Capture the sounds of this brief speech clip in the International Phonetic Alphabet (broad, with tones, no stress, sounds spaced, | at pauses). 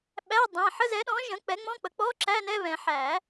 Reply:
ɓ æ˧˥˧ dˤ æ̃˩˧˩ ħ ə˧˥˧ z ɛ˩˥ ɗ ɔ̃˩˥ ʒ ə̃˩˥ k͡p ɛ˩˥ ŋ͡m ɔ̃˧˥˧ k͡p ə˩˥ k͡p ɔ˧˥˧ ǁ æ˧˥˧ n ɛ˧˥˧ β ɛ̃˨˩˦ ħ æ˨˩˦